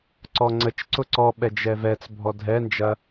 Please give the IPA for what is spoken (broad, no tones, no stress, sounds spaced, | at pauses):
ǀ ɔ ŋ͡ǀ ə t͡ʃ ǀ ʊ ǀ ɔ ɓ ɛ d͡ʒ ɛ v ɛ t͡s bʱ ɔ dʱ ɛ n d͡ʒ ɐ